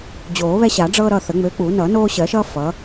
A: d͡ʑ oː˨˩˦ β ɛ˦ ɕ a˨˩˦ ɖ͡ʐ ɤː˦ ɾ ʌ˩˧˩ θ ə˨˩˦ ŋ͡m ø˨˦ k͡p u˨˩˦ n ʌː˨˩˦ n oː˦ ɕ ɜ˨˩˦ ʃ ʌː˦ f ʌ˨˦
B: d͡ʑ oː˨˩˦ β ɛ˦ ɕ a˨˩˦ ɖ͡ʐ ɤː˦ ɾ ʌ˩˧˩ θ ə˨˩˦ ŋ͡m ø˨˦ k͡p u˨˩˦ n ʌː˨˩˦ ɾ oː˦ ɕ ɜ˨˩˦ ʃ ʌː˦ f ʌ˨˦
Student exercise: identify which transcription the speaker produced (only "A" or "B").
A